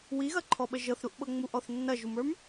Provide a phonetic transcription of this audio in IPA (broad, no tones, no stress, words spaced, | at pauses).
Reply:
wiɣɐǃʰɔɓə ʒɤθɾuʔɓɤ ŋ͡muʔɔθ nːɐʒumə˞m